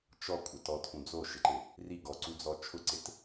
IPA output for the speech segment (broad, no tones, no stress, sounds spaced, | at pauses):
t͡ʃ ɔ kʷʼ ɪ t ɔ tʰ ũ d͡z o ʃ ɪ ǃ ɪ | r i ɡ ɔ ǀ u d͡z ɔ t͡ʃʰ ʊ ǀ ɪ t